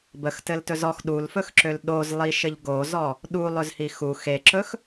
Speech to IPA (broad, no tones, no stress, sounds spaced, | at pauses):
b ə x t ɘ l t ɵ z ɔ x ɗ u l f ɵ x ǁ ø l ɗ o z lˠ i ʃ ɘ ʎ ɡ o z ɔ | ɗ u lˠ ɵ z h i x u x e ǁ ɵ x